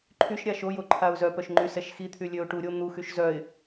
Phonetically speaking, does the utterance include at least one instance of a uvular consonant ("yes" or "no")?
no